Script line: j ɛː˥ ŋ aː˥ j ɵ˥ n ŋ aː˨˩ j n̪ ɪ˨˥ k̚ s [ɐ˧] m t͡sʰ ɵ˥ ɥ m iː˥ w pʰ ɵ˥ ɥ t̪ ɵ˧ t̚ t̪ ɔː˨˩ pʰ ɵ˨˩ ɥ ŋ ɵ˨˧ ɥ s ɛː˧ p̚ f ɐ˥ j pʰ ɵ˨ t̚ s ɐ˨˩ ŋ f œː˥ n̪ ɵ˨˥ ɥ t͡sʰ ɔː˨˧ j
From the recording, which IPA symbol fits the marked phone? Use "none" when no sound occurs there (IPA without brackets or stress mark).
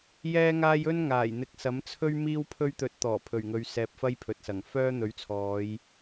ɐ˨˥